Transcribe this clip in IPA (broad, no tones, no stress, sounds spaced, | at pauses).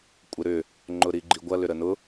kʷʼ ɪ ɾ ʏ | ŋ͡ǃ ʊ ɾ i ɡ͡ǃ i ɡʷ ɐ l ʏ ɾ ə n ʊ